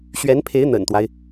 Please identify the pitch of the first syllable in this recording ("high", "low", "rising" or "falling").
rising